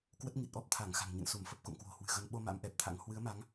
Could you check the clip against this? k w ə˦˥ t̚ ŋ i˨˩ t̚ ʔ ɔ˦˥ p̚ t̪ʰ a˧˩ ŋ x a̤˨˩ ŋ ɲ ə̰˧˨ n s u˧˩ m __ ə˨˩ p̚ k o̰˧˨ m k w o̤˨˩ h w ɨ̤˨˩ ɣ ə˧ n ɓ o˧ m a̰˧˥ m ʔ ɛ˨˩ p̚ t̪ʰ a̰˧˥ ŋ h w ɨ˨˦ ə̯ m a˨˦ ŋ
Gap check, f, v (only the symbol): f